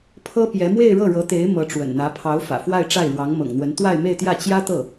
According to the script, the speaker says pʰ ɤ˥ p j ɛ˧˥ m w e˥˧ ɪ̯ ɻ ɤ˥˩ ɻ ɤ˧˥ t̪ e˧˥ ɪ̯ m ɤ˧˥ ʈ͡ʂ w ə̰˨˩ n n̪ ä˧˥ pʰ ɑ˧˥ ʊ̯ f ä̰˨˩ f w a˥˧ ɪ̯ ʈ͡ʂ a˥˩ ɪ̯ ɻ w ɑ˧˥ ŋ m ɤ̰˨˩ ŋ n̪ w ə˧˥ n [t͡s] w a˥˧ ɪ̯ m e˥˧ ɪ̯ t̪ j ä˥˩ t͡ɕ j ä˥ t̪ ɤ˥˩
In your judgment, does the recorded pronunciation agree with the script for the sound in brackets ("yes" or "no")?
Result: no